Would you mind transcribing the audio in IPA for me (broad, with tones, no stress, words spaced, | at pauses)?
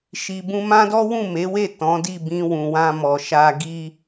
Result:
ʃi˨bũ˧mã˦dɔ˦ wũ˦˨me˨˦we˦˨ tɔ̃˨˦ di˦˨bĩ˧ wũ˨wã˧mɔ˨ʃa˧ ɡi˦